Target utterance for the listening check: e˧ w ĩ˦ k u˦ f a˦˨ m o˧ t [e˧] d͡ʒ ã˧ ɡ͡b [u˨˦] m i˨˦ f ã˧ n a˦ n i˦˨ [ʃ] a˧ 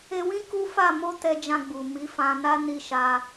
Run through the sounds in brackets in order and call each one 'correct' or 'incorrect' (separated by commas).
incorrect, incorrect, correct